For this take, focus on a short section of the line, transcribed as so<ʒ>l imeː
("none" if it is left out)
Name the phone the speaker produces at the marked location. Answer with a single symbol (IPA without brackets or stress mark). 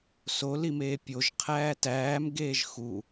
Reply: none